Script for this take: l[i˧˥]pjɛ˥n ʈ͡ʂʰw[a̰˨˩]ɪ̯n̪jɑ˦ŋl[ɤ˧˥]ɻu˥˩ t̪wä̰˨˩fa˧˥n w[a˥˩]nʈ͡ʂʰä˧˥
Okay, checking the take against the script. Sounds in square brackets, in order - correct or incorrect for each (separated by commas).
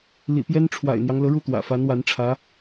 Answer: incorrect, correct, correct, incorrect